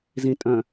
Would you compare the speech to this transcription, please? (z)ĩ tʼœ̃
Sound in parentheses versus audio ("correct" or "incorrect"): correct